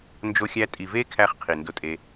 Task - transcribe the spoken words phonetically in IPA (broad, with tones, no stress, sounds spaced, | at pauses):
n d͡ʒ o˧ xʲ æ˧ tʼ i˨ v e˦ kʰ æ˧ χ qʰ i˨ n d o˧ tʼ e˧